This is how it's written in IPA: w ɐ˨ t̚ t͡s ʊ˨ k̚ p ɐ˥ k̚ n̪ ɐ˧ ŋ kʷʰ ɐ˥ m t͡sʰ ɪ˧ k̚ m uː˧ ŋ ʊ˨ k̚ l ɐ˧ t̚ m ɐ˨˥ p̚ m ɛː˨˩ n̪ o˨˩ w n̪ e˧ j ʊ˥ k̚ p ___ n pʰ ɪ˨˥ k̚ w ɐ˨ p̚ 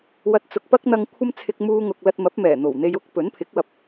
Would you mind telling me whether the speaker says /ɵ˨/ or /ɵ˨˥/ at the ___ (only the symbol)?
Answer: ɵ˨˥